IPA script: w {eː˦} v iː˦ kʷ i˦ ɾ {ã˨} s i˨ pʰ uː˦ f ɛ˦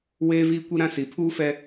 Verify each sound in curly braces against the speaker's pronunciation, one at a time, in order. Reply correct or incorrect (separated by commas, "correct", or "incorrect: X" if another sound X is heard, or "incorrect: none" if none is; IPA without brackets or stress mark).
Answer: correct, incorrect: ã˦